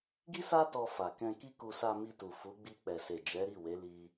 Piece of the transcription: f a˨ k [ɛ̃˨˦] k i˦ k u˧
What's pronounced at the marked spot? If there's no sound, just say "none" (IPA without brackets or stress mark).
ɛ̃˧